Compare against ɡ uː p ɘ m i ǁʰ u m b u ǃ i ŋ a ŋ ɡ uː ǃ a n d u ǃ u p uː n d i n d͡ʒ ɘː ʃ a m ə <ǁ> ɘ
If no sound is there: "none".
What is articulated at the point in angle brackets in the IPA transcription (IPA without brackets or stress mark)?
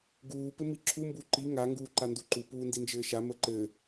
ǃ